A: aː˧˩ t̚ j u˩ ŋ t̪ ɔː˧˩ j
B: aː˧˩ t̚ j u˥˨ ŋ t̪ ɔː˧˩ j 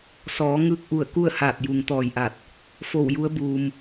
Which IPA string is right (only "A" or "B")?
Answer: A